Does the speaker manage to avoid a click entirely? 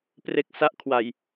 yes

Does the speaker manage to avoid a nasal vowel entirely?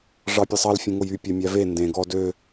no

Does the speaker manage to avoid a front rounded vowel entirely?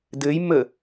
yes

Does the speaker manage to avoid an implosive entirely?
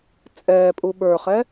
no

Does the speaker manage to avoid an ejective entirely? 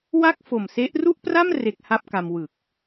yes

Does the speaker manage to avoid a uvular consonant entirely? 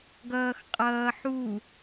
no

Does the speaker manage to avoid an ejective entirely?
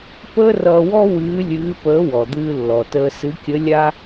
yes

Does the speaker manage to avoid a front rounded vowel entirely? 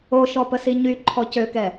no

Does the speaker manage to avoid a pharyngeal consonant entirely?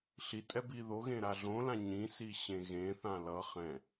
yes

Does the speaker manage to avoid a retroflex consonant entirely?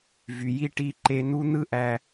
no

